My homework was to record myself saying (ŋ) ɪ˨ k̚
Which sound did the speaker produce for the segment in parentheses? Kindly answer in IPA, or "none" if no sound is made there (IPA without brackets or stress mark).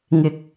ŋ